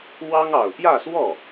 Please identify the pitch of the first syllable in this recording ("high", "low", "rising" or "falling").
high